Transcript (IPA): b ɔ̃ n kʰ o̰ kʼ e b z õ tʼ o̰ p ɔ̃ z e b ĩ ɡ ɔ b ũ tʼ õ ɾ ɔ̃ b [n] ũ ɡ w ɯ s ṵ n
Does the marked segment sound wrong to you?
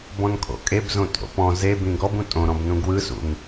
no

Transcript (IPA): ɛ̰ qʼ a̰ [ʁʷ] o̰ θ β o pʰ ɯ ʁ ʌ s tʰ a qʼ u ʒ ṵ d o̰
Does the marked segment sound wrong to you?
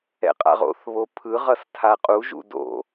yes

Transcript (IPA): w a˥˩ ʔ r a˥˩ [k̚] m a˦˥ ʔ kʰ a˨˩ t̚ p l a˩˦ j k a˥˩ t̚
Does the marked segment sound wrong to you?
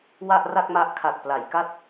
no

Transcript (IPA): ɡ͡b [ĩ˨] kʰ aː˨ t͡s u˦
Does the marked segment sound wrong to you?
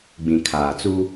no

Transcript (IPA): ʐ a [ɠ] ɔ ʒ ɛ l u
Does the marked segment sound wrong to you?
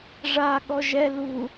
no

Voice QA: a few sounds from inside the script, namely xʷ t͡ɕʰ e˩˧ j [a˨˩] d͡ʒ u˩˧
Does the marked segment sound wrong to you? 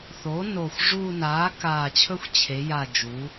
no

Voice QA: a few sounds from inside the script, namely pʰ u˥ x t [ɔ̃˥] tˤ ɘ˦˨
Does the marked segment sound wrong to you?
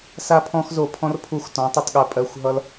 yes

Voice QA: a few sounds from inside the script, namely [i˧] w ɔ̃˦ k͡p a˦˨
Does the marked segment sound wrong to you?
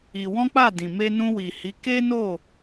no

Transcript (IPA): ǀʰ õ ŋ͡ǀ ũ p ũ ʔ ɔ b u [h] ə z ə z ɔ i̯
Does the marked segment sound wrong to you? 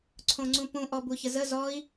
yes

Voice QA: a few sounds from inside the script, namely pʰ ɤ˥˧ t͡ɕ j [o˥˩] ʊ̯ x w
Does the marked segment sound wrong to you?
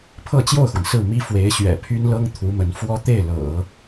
no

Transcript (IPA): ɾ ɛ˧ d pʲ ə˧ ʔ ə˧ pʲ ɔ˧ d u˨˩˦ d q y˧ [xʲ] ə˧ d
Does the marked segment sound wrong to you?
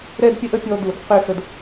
yes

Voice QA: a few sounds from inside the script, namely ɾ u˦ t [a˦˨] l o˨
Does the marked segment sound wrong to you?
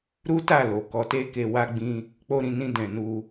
no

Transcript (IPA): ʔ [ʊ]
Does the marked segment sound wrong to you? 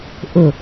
no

